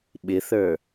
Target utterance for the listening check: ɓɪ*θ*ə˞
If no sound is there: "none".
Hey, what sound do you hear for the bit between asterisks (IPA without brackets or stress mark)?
θ